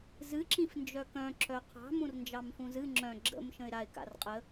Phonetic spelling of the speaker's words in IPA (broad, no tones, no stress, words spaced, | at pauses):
zɨǁĩf nd͡ʒœkœ̃ ǁœqʰɑ̤mũr nd͡ʒɑmfũzɨ ŋ͡ǁœ̃ ɡ͡ǁə̰m ʃə̃ɪ̯ɾaɪ̯ka̰r qʼə